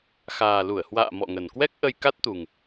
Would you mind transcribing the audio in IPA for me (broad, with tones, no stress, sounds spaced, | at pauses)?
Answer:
x aː˨˩ l u˧˩ ə̯ h w a̰ː˧˨ m ɔ̰˧˨ ŋ ə˨˩ n k w ɛ˦˥ k̚ ʔ ə˧ j k a˦˥ t̚ t̪ u˨˩ ŋ